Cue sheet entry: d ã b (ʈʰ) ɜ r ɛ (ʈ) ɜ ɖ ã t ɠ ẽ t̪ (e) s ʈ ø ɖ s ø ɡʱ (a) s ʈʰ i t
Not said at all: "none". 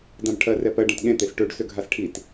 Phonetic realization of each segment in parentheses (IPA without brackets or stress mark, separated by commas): ʈʰ, p, e, a